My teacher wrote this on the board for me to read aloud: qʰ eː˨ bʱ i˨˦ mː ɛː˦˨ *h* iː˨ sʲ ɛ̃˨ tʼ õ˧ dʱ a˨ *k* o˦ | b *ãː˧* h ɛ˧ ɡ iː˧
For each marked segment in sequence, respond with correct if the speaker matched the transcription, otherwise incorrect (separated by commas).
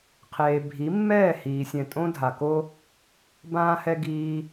correct, correct, correct